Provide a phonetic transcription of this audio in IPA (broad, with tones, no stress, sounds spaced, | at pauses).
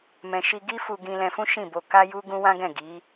m ɛ̃˨ ʃ i˧ ɡ i˦ f u˧ ɡ ĩ˧ l ɛ̃˧ f ũ˦ ʃ ĩ˦˨ b o˧ k a˦ j u˦ ɡ ũ˦ w ã˦ ɡ ɛ̃˦˨ ɡ i˨˦